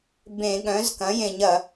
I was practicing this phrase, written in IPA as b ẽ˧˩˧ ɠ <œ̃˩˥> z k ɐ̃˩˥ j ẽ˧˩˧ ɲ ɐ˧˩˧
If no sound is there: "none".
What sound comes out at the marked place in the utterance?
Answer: œ̃˩˥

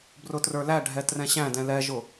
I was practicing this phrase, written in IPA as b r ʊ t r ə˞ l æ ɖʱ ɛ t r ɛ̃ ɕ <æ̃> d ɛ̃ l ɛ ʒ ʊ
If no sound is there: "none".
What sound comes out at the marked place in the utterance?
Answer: æ̃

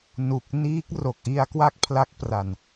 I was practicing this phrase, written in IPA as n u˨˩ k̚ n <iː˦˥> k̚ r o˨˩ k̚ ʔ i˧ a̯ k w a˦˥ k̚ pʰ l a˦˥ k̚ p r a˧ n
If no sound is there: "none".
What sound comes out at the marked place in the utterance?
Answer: iː˦˥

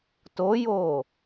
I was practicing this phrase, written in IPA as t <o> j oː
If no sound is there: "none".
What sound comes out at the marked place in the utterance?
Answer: o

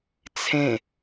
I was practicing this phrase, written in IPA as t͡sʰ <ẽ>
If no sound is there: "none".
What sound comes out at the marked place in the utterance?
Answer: ẽ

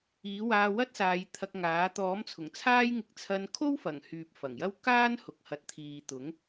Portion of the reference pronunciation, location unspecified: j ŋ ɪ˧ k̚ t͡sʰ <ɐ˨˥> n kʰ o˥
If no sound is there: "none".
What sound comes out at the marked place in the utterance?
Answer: ɐ˧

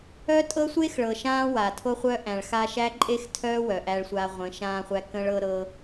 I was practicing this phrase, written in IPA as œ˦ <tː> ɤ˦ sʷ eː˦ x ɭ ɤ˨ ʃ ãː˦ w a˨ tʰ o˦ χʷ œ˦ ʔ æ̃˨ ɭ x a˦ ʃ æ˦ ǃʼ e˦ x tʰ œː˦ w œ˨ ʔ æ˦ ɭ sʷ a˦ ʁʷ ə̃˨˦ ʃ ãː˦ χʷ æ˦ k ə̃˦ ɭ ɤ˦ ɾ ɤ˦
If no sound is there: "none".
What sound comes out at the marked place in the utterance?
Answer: tʼ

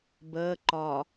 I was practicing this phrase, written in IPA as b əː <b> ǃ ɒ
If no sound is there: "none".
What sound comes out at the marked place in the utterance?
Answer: none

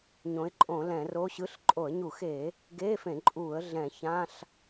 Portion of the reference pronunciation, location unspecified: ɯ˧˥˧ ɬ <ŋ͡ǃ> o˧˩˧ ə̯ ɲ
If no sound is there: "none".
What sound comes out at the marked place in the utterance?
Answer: ǃʼ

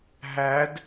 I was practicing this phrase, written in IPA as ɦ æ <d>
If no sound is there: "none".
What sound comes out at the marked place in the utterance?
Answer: d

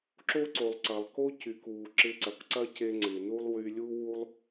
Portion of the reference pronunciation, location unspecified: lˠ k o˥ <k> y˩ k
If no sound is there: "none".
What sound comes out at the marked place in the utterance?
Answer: c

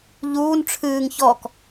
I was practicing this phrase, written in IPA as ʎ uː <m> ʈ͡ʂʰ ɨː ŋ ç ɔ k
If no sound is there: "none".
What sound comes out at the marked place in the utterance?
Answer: n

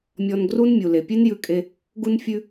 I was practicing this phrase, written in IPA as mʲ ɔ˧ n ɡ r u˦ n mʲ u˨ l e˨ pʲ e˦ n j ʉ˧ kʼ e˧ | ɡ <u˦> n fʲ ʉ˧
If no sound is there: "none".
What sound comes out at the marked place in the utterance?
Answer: u˧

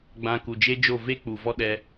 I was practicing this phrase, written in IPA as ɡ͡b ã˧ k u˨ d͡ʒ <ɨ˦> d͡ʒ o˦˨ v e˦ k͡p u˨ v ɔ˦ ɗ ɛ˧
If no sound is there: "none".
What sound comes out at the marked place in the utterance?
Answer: e˦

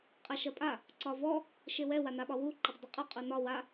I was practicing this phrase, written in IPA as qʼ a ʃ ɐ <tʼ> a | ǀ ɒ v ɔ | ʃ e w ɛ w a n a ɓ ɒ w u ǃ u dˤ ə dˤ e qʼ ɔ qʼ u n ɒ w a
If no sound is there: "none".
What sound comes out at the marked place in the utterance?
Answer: pʼ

